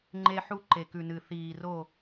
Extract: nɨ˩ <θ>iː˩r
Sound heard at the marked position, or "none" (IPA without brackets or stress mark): θ